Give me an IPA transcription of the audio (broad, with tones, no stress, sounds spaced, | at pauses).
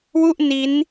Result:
w u˥˩ ʔ n i˦˥ n